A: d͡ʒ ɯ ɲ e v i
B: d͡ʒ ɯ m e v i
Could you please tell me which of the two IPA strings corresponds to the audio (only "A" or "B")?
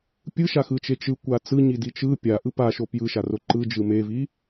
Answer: B